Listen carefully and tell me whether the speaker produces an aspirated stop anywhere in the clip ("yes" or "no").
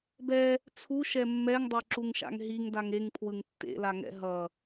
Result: yes